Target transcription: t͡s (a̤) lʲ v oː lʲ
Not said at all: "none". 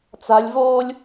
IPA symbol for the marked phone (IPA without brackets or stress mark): a̤